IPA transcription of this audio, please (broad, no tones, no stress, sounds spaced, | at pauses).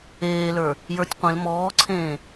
eː l ə˞ | j ə˞ tʲ qʷ ẽ l m ɔː ǀʰ ẽː